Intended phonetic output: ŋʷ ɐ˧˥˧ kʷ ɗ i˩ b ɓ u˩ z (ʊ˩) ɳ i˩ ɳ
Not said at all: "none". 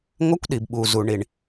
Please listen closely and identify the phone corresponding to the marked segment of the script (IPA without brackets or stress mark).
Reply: u˩